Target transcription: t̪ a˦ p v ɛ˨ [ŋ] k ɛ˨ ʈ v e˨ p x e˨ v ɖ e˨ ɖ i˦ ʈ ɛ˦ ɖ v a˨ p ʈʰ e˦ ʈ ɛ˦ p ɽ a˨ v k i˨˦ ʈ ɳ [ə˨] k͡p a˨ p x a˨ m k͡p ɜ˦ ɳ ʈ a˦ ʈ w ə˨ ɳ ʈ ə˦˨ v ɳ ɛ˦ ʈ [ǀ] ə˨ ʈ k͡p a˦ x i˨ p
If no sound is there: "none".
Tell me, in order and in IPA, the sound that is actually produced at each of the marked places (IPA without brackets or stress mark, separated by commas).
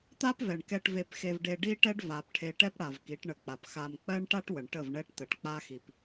ɳ, ə˨, t̪